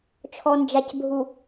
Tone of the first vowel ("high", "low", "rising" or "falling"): low